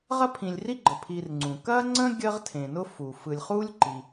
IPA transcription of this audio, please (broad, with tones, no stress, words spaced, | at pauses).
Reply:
ʁɐ˥pʰĩ˨lʲri˥ɡ͡ǃə˩ pʰi˨rŋ͡ǀũ˩ kɐː˥ŋ͡ǀə̃˥ ɡʲəː˦ʁtʰẽ˩nʊ˦ fuː˩ fɯ˨lʲχuː˥lʲǃi˩